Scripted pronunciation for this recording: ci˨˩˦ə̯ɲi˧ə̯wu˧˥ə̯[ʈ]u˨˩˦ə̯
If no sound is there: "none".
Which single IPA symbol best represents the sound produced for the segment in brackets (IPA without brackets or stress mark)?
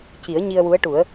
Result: ʈ